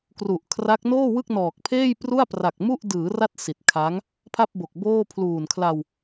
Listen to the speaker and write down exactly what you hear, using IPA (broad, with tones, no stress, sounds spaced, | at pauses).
k r u˨˩ ʔ kʰ r a˦˥ k̚ n oː˥˩ w ɯ˥˩ k̚ n ɔː˨˩ k̚ pʰ eː˥˩ j p r u˥˩ a̯ p r a˨˩ k̚ m u˥˩ ʔ d ɯː˩˦ r a˦˥ t̚ s i˨˩ t̚ kʰ a˦˥ ŋ | pʰ a˥˩ p̚ b o˨˩ k̚ b oː˥˩ pʰ l uː˨˩ n kʰ l a˧ w